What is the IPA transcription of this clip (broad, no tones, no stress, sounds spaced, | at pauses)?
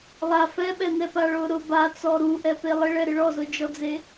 lˠ a f ɛ ɓ ɛ n̪ ɛ p a ɭ ʊ ɾ ʊ b a t͡s ɔ ɾ u ʔ ɛ p e lˠ ɪ ɭ ɛ ɾ ɪ ɭ ɔ z ʊ d͡ʒ ɔ d͡z e